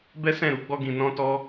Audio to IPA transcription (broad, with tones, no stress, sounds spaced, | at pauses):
b ɛ˦ s ɛ̃˦˨ ɾ u˧ ɡ͡b ɔ˧ ɡ ĩ˨ n ɔ̃˧ t ɔ˧